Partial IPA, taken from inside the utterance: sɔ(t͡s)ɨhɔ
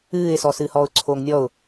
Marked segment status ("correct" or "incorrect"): incorrect